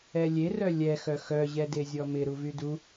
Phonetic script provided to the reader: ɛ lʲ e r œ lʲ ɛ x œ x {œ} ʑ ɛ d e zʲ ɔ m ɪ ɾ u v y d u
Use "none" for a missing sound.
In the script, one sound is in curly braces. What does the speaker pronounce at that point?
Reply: œ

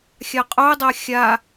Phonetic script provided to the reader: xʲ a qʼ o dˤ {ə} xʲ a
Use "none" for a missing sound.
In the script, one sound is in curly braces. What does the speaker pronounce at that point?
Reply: a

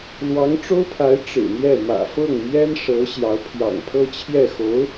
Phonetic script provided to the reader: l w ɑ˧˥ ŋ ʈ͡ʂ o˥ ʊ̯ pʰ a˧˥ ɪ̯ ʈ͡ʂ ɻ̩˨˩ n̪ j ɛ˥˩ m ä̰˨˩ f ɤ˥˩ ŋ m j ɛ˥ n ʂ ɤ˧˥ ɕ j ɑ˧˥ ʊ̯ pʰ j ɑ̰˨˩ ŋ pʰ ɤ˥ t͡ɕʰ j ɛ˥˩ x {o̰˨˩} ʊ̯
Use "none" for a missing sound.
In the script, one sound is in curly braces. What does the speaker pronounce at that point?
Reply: o˧˥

